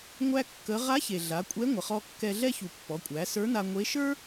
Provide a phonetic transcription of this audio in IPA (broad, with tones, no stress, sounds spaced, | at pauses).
ŋʷ æ˧ kː ə˩˧ ʁ a˧˥ ç e˩ ɮ a˩˧ kʷʼ ɛ˧˥ ŋʷ ə˩ χ ɔ˧ kː ɛ˧ ɮ ɛ˥ ç u˩ pː ɔ˩˧ kʷʼ æ˩˧ s ə˞˧˥ n a˧ ŋʷ e˧˥ ʃ ə˞˥